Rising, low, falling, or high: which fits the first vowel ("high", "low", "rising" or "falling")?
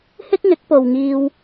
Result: high